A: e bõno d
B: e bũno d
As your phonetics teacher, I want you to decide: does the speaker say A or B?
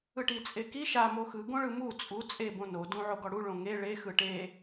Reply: A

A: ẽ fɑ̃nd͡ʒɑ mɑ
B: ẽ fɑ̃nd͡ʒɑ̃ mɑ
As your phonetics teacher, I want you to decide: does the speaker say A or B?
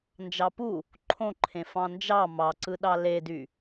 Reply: A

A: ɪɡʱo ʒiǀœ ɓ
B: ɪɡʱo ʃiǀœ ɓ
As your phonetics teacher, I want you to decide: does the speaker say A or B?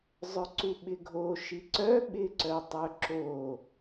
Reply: B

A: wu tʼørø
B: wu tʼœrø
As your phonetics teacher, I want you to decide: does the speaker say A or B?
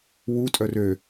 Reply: B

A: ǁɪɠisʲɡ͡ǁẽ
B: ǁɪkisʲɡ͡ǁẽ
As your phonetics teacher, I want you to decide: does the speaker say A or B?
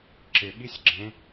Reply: A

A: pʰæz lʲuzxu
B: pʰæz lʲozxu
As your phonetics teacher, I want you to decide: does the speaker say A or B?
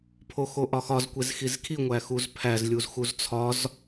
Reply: A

